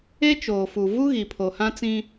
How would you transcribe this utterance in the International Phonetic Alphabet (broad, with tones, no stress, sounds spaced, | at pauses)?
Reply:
e˦ t͡ʃ oː˨ f u˨ v u˦ ɣ i˨ pʰ o˨ h ã˦ t͡s ĩ˦